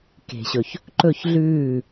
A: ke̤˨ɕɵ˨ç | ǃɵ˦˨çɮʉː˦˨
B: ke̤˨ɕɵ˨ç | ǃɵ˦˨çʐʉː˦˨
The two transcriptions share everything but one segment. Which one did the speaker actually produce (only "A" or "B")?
A